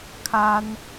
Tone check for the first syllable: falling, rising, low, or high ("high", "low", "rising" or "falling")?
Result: high